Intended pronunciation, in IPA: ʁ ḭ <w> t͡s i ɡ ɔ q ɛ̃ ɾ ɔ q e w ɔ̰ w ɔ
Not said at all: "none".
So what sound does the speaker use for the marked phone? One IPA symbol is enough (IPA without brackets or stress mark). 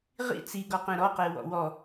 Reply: none